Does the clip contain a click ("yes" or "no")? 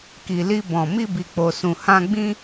no